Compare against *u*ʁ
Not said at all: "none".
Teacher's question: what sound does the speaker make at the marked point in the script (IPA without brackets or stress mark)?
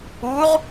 u